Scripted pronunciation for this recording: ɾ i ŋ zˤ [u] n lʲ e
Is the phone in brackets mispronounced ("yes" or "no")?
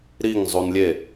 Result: no